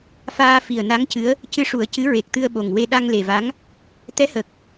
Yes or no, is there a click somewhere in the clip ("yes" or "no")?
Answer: no